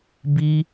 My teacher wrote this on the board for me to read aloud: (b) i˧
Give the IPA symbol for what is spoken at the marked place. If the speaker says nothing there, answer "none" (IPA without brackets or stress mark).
b